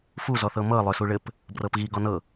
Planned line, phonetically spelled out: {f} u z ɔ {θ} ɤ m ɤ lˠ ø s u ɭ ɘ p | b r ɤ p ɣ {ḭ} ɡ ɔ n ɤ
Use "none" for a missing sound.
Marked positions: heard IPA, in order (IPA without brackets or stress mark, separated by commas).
f, θ, i